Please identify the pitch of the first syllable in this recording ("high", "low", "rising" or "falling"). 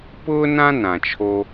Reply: high